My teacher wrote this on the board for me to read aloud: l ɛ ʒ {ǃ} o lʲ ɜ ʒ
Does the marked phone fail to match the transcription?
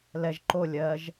no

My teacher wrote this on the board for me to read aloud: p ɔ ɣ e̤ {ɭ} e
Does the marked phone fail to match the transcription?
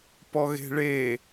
no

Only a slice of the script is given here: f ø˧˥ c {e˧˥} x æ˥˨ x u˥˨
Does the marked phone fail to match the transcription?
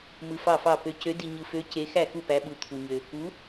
no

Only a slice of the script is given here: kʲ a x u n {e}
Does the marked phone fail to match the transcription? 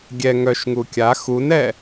yes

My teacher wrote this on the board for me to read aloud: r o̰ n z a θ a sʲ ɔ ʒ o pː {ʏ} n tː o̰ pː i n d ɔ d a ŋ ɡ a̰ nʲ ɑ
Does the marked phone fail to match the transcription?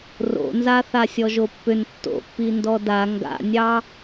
no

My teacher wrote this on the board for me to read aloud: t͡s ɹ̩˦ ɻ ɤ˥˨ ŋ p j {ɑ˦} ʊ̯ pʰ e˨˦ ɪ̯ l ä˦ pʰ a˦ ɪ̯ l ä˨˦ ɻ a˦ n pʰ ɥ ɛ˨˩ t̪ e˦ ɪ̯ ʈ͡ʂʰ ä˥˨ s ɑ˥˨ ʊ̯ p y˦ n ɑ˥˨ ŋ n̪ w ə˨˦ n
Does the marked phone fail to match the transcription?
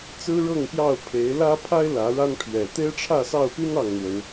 yes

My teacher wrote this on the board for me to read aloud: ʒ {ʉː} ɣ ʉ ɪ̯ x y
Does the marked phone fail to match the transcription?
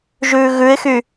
no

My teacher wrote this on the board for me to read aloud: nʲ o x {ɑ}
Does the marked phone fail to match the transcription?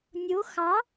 no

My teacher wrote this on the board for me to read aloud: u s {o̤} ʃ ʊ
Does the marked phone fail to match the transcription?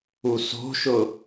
no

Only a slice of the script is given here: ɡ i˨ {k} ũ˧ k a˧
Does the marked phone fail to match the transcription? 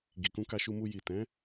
no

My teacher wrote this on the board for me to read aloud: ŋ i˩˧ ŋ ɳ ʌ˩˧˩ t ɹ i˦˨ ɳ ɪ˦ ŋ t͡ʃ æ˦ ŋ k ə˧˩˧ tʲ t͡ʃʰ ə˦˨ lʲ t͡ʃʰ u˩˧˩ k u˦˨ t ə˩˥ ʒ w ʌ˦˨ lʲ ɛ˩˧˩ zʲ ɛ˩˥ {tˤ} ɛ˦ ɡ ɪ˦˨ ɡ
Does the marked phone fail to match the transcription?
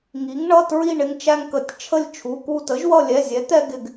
yes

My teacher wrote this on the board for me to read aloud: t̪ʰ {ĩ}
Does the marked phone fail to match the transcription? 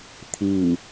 yes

